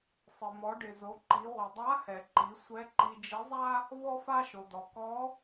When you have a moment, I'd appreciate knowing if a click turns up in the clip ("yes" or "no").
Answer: yes